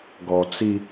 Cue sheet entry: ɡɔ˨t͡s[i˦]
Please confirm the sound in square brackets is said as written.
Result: yes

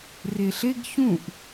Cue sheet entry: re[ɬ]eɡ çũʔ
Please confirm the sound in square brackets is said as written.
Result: yes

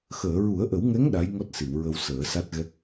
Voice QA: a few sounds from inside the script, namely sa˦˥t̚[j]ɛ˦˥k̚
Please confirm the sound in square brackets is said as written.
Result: no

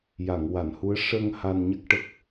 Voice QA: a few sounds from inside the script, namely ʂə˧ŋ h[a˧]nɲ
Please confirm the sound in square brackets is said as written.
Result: yes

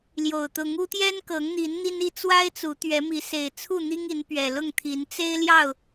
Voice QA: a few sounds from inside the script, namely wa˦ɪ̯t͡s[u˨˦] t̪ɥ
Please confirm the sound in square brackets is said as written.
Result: yes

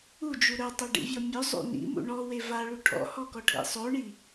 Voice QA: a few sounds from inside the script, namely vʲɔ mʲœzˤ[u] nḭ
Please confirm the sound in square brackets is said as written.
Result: no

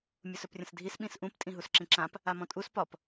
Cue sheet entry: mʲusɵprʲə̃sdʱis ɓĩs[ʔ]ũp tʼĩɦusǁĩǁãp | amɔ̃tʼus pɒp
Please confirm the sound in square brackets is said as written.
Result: yes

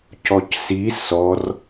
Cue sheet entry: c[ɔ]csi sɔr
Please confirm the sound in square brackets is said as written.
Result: yes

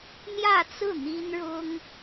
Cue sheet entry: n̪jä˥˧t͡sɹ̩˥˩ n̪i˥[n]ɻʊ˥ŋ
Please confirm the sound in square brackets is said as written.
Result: yes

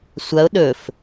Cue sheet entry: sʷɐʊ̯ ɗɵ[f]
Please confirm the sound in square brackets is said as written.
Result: yes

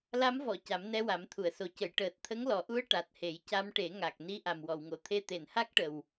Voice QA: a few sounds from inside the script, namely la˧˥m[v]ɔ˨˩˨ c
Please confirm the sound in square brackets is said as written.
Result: yes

